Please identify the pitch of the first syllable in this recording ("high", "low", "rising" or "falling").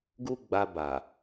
high